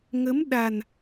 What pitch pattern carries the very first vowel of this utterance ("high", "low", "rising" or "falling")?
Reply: rising